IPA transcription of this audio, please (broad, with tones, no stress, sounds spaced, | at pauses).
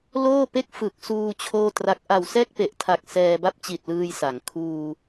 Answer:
l oː˥˩ p e˥˩ k̚ f ɯ˨˩ k̚ s uː˧ t͡ɕʰ oː˥˩ t r a˦˥ k̚ ʔ a˨˩ w s ɛː˥˩ k̚ p e˨˩ ʔ tʰ a˨˩ k̚ s ɛː˧ b a˥˩ p̚ t͡ɕ i˨˩ t̚ l ɯː˧ j s a˩˦ ŋ kʰ uː˧